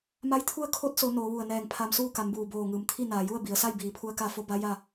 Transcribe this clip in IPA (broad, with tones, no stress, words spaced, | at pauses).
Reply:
ma˧˥jt̪ʰu˥˨ə̯ kʰo˧˥t̚so˩˧ noː˩˧ʋu˧˩ə̯nɛː˧˩ŋpʰa˧m suː˥˨ka˩˧m buː˩boː˧˩ŋɯː˩mt̪ʰi˥˨ naː˩ju˥˨ə̯bi˩˧ə̯sa˥˨j biː˩˧ pʰu˧˥ə̯ka˧fo˧˥ ba˧˥ ja˥˨